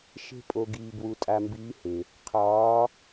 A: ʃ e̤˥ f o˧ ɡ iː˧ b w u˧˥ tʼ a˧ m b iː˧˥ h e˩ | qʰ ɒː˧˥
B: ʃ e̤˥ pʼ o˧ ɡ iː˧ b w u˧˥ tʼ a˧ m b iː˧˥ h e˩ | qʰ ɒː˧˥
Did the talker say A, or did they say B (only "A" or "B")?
B